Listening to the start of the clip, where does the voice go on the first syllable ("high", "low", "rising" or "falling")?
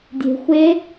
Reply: low